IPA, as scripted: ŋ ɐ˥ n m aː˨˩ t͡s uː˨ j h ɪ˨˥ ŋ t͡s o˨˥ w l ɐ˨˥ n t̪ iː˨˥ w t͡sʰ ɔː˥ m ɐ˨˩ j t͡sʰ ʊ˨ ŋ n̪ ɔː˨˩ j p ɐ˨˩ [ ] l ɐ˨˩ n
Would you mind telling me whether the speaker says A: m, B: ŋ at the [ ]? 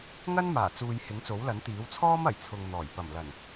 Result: A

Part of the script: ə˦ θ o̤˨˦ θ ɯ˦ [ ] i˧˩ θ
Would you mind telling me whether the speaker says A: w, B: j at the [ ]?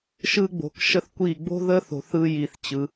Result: B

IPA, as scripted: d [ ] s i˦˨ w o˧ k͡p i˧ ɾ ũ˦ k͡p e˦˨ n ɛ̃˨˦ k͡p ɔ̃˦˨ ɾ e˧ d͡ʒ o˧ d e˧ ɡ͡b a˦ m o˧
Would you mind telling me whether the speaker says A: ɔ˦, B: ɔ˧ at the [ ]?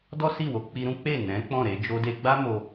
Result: A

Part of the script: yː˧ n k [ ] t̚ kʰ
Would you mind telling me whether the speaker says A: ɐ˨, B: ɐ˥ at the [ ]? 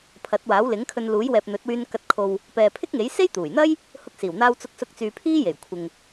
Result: A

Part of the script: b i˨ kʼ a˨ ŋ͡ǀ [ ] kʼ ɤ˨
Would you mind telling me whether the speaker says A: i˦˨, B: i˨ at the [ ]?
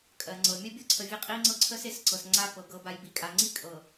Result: A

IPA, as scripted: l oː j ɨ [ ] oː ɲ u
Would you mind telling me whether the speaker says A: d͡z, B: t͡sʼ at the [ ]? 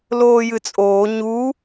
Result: B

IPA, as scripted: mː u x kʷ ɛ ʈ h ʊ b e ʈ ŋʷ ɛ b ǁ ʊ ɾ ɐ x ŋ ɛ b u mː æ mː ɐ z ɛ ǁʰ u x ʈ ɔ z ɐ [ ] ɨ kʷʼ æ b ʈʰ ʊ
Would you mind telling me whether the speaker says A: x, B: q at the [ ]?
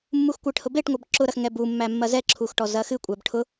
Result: A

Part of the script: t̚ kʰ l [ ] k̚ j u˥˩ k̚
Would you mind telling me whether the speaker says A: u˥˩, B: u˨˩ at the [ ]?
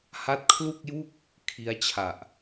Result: A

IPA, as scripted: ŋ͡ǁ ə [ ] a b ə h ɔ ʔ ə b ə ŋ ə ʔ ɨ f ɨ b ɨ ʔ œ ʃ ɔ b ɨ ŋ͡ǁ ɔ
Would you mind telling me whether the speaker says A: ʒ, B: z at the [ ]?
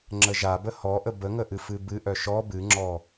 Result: A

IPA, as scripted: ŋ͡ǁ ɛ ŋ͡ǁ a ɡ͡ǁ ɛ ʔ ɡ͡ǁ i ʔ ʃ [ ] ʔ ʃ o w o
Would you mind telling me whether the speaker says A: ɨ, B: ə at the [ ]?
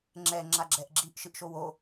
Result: A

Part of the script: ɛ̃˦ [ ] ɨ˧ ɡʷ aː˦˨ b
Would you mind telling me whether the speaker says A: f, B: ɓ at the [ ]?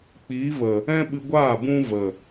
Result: B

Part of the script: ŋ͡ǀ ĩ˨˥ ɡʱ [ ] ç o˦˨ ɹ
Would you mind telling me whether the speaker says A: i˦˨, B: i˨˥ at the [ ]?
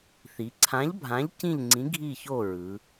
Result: A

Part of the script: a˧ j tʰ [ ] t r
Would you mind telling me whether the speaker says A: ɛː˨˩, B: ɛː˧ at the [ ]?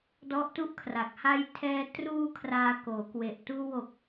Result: B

